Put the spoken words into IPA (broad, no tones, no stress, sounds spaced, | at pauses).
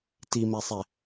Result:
t i m ɛ sˤ ɛ